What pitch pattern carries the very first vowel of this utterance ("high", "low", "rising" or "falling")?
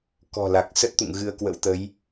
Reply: low